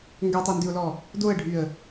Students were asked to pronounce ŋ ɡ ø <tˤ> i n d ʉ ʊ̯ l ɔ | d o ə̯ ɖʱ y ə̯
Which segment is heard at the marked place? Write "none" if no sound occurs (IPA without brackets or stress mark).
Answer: tˤ